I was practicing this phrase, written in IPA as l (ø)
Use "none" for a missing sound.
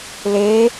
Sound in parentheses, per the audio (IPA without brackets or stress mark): e